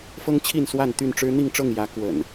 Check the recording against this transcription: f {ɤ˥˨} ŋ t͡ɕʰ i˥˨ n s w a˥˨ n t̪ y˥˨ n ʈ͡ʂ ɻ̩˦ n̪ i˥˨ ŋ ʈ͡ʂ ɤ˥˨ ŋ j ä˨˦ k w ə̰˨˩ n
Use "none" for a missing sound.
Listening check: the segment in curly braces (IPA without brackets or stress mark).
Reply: ɤ˦